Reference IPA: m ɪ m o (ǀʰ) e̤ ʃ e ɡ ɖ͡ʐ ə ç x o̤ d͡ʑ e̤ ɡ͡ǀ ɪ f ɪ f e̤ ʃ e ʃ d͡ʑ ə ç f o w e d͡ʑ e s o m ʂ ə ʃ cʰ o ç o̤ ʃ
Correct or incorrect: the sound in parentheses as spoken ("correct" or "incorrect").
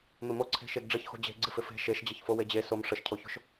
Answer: correct